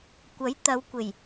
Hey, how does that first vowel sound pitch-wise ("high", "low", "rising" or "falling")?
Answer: rising